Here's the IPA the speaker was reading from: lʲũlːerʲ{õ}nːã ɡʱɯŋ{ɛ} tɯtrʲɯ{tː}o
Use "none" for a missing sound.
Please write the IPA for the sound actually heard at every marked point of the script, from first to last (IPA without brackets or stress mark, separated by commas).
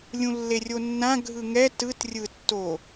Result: o, ɛ, tː